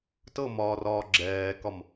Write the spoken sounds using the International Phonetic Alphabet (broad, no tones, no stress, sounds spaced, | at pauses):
t ɤ m ɒː r ɒː ɡ͡ǁ ɛː k ɒ m